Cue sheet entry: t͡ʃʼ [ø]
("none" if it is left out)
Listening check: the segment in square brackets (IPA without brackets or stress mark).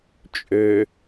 ø